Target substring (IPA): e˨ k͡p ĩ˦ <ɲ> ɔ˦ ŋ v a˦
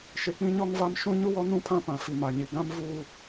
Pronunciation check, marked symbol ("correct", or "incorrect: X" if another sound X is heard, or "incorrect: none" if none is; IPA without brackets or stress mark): correct